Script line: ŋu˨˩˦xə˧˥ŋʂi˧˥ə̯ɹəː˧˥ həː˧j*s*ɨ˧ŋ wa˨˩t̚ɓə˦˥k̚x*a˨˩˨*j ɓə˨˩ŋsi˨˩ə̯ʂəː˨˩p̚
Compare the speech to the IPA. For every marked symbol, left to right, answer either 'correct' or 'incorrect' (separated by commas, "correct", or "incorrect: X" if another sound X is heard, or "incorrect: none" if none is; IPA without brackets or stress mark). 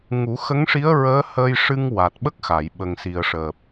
incorrect: ʂ, correct